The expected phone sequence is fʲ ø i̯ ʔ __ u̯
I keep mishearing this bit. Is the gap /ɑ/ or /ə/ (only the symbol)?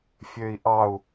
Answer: ɑ